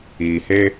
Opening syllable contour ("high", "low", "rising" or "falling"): low